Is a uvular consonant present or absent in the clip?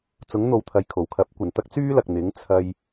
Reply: absent